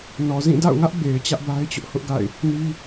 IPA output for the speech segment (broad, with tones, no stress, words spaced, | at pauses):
nɔ˨ zĩ˦˨da̰˦˨ʊ̯ŋä˦ʔ be˨ɪ̯ t͡ɕä˦ʔba˦ɪ̯t͡ɕʊ˦ʔ hʊ˦ʔɡa̰˦˨ɪ̯ | ni˦